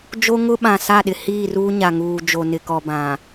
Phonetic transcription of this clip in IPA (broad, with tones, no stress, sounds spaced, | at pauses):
d͡ʒ o˦ ŋ ʊ˦ ɓ ã˨ s a˦˨ ɗ ɪ˨ h iː˦˨ r uː˦ ɲ a˨ ŋ uː˨ d͡ʒ o˨ n ɪ˨ k ɔ˨ b ã˨